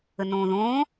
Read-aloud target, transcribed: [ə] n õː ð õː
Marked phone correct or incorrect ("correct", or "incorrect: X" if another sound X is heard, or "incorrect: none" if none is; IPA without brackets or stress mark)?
correct